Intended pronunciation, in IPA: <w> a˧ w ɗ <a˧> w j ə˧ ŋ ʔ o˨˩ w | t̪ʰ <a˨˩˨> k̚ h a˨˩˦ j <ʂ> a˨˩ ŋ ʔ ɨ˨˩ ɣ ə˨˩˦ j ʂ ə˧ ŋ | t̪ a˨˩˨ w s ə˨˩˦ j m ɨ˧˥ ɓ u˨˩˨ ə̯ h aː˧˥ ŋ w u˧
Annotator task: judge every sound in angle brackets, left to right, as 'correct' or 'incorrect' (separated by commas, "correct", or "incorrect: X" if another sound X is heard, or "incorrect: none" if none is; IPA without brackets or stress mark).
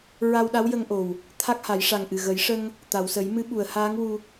incorrect: ɹ, incorrect: a˧˥, incorrect: a˦˥, correct